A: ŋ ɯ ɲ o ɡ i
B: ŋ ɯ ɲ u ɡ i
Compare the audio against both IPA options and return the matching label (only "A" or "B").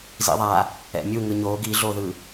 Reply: A